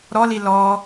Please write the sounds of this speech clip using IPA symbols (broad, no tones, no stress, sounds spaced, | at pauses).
ɾ ɔ l i l ɔ